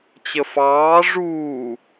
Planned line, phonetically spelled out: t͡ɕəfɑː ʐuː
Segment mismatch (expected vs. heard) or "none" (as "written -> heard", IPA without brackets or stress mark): none